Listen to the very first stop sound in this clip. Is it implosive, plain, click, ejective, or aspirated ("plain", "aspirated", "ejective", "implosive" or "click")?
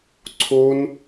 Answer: click